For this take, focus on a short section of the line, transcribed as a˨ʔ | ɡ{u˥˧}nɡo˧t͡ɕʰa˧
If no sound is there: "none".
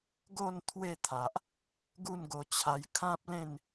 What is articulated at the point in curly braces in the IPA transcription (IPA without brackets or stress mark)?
u˥˧